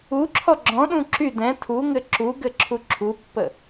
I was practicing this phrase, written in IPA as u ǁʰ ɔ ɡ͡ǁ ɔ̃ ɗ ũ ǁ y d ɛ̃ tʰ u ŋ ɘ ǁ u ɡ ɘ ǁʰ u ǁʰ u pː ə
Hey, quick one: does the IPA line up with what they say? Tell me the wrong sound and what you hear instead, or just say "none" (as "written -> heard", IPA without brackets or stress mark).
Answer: none